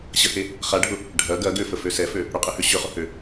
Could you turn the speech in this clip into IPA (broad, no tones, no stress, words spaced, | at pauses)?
ɕəhe | χaɖʱʊ | ɖʱɐ ɡɐ ɡøfəfø sɛfø | ɽʊqʼehø ɕøχʊ hø